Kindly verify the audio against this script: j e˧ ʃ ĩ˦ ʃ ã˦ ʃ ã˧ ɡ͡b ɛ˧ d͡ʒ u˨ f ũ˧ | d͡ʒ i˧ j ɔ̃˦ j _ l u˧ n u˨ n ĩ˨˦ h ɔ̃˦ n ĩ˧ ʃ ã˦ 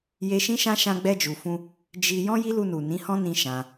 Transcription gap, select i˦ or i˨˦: i˦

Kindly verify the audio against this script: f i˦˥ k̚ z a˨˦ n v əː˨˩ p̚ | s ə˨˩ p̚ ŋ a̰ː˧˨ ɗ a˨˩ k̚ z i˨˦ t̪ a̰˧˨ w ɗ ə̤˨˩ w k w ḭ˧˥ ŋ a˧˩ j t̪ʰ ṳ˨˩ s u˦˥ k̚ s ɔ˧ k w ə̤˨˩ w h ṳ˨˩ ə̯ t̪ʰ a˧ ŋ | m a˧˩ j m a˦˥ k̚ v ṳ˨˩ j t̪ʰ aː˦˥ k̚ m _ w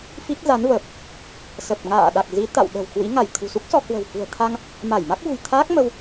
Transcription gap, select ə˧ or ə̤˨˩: ə˧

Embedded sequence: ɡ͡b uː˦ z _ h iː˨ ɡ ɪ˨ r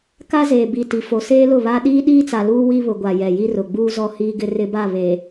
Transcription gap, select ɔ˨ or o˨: ɔ˨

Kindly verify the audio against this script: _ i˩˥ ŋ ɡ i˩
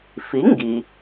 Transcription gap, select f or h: f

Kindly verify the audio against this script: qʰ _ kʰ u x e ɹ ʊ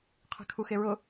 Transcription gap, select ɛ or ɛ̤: ɛ̤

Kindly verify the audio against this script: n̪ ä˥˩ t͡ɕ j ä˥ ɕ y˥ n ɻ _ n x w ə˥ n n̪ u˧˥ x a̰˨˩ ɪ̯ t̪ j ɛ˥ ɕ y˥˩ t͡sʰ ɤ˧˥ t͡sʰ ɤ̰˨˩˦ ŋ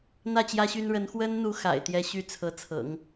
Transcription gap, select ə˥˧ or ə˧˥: ə˧˥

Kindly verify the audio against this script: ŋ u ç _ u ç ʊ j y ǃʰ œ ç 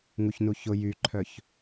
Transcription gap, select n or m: n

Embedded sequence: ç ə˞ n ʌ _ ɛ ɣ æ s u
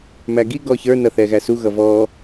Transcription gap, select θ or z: θ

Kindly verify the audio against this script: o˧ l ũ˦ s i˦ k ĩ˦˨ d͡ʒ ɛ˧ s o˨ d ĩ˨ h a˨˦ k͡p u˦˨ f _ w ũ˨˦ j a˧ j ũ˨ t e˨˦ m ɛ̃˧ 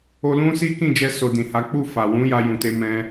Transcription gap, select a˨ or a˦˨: a˨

